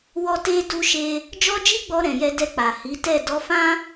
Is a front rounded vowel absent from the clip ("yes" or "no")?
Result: yes